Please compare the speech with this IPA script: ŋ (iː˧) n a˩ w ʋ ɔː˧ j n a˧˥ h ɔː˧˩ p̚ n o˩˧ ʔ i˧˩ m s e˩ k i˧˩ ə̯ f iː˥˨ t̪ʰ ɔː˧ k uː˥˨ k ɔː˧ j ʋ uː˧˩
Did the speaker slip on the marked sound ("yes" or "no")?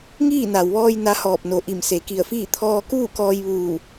yes